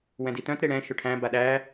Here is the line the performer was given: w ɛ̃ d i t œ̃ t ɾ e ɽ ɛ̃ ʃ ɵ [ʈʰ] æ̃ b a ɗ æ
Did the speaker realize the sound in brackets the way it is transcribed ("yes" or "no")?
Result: yes